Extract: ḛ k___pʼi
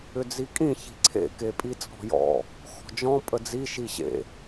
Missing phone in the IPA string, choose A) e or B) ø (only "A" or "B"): A